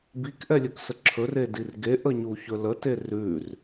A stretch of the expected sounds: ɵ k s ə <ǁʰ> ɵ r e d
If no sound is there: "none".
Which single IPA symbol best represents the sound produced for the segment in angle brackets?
ǁʰ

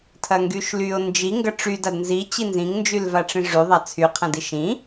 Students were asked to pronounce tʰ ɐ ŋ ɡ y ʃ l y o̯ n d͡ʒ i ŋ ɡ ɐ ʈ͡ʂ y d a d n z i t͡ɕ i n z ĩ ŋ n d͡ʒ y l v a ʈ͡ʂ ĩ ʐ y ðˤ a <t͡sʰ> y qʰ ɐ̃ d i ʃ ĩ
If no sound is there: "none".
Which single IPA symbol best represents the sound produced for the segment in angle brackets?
t͡sʰ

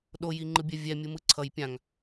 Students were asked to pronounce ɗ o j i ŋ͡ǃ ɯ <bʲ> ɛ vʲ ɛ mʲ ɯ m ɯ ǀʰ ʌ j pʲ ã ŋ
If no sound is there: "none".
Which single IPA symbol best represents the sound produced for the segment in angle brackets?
bʲ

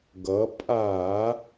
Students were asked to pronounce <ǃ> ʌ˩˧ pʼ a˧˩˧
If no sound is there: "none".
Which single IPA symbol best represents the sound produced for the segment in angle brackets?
ɡ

